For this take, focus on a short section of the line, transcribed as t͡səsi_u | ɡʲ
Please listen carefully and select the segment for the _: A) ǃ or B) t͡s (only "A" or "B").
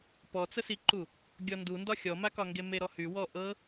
A